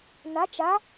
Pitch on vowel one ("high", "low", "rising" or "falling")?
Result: rising